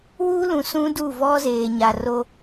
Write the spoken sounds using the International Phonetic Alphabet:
w uː˦ l ũ˨ s ũ˦ d u˦˨ v ɔ˦ z eː˨ ɲ a˨ r o˦

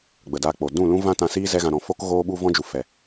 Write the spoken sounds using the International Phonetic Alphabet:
ɡ͡b ə˨ d aː˧ k͡p o˨ d ũ˦˨ l ũ˦ v ã˦ t ã˧ s iː˦ z ɛ˦ ɣ ã˧ ɾ ɔ̃˧ f o˦ k ɣ oː˦ ɓ u˦ v ɔ̃˦ d͡ʒ u˨ f ɛ˨

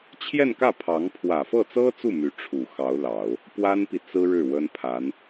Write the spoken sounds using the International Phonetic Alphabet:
t͡ɕʰ j ɛ˥˧ n k ä˥˩ pʰ ɑ˧˥ ŋ pʰ w ä˨˩ f ɤ˥˩ t͡s ɤ˥ t͡s u˥˩ m y˧˥ ʈ͡ʂʰ u˨˩ x ɑ˧˥ ʊ̯ l ɑ˨˩˦ ʊ̯ | p w a˥ n p i˨ t͡s ɹ̩˥ ɻ ɻ̩˥˩ w ə˥ n pʰ a˧˥ n

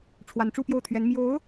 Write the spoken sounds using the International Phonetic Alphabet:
ʈ͡ʂʰ w a˧˥ n ʈ͡ʂ u˥˧ p j o˥˩ ʊ̯ t̪ʰ ɥ ɛ˧˥ n m j o˧˥ ʊ̯

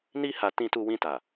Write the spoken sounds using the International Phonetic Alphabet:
n i˧ h a˨ t ĩ˧ t u˧ w ĩ˧ t a˨

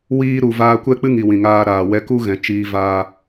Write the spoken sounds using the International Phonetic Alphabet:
w iː˧ ɾ u˨ v aː˧ kʷ ɛ˦ k͡p ɨ˦ ŋ i˨ w ĩ˨ ŋ aː˧ ɾ aː˨ w ɛ˧ k u˦ ɣ ɛ̃˨ t͡ʃ iː˧ v aː˦

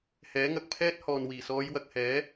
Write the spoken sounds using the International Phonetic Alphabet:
h ɛː˨˥ ŋ ɐ˨ k̚ pʰ ɛː˥ t̚ h ɔː˨ n w iː˨˩ s ɔː˨˧ j w ɐ˨ k̚ h ɛː˨˥

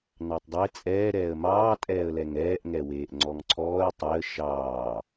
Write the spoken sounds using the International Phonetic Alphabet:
n ɑ tˤ dˤ e t͡sʼ ɛː ɾ ɛː ə̯ m ɑː tʼ ɛː ə̯ l ɛ ŋ ɛː ʔ ŋ ɛ w eː ʔ ŋ͡ǀ ɔ ŋ ǀʰ ɔː ə̯ tˤ e ə̯ ʃ ɑː

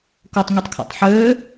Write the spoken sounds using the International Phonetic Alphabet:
k o tˤ ŋʷ i tˤ kʰ a̰ tˤ ħ øː

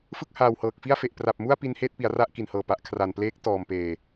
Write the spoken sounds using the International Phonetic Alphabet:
f ɯ˥˩ k̚ h aː˨˩ w h ɤː˨˩ k̚ f i˥˩ a̯ f e˨˩ ʔ p r a˨˩ p̚ m u˥˩ a̯ p i˦˥ n h eː˥˩ t̚ p i˩˦ a̯ r a˥˩ ʔ k i˨˩ n h ɤː˨˩ p a˨˩ ʔ kʰ r a˨˩ n p l eː˦˥ k̚ t ɔː˨˩ m p eː˨˩

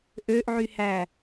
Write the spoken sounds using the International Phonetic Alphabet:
ʔ ø ʔ ʕ y h æ

